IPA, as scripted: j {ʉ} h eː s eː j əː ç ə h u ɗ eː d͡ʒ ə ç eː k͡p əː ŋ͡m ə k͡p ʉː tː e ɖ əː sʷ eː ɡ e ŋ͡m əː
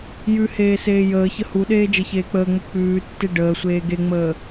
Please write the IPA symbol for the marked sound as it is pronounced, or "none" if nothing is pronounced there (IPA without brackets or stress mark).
ʉ